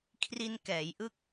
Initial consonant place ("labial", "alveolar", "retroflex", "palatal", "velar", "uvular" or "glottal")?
velar